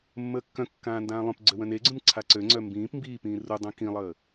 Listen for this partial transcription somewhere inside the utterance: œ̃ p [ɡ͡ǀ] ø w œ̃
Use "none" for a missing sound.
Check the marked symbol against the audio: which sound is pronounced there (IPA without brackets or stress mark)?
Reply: ɡ͡ǀ